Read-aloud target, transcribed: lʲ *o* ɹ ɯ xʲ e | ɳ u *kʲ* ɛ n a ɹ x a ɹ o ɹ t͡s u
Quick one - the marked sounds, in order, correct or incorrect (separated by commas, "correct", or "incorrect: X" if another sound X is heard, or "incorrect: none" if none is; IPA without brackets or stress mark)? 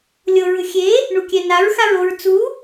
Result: incorrect: ɤ, correct